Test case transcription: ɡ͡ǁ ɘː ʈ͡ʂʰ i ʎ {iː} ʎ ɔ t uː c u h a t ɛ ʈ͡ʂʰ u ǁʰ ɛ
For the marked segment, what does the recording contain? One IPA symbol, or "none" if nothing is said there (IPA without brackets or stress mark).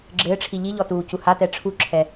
i